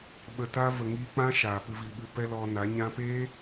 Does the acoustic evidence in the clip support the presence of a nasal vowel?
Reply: yes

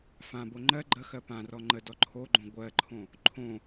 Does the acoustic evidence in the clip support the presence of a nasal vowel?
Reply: yes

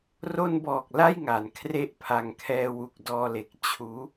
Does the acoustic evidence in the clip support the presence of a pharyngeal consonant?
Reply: no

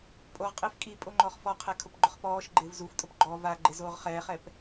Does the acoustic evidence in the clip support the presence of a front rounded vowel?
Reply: no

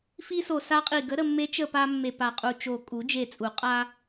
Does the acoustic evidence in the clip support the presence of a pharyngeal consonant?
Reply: no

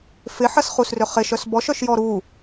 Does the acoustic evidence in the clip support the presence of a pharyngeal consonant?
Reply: yes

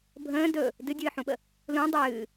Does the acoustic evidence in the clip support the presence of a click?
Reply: no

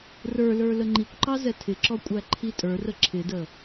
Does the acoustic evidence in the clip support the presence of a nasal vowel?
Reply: no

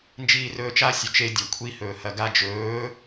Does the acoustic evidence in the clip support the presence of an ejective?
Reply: no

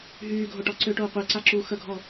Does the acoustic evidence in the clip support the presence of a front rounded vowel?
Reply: yes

